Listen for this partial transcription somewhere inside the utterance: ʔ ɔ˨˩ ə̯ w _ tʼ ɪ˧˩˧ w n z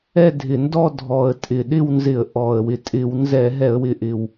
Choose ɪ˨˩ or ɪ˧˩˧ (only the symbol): ɪ˨˩